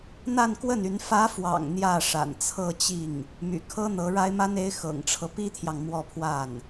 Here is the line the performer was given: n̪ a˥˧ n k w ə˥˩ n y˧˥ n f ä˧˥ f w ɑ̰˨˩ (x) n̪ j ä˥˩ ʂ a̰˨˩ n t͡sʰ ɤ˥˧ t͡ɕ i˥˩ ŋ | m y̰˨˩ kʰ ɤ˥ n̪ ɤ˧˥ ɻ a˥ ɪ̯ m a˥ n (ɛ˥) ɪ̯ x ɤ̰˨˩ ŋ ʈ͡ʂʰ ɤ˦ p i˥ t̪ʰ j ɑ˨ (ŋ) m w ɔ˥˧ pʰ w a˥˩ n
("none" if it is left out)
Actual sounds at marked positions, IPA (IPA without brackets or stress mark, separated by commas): ŋ, e˥, ŋ